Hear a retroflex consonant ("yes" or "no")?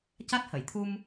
no